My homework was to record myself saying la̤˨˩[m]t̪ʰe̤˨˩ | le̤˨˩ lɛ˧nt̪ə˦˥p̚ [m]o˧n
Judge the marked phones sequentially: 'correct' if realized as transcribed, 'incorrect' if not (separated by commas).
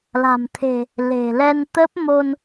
correct, correct